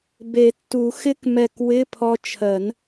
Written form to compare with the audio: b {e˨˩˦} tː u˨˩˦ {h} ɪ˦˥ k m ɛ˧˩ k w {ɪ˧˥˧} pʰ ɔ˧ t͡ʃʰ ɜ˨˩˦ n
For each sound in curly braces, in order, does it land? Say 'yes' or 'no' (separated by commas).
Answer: yes, no, yes